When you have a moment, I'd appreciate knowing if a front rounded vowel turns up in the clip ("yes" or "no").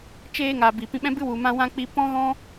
no